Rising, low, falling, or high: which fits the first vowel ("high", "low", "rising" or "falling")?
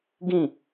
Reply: falling